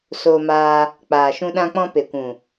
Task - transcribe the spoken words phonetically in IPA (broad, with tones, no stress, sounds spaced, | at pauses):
s oː˧ m aː˧ | k͡p aː˨ ʃ ũ˧ ɗ ã˧ k͡p ɔ̃˧ p e˨ kʷ ũ˨